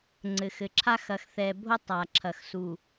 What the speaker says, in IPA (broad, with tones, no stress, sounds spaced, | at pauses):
ŋ͡ǀ ɘ˨ x ɘ˨ ǁʰ a˦ x ɐ˨ x θ ɛ˨ bʱ o˦ tˤ a˨ ǁʰ ɐ˨ x s u˨